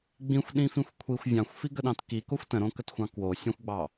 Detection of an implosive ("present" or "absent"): present